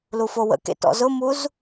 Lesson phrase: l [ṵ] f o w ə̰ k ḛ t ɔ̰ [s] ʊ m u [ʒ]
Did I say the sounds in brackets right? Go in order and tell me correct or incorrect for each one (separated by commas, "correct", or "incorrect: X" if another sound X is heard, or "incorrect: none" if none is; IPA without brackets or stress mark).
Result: incorrect: u, incorrect: z, incorrect: z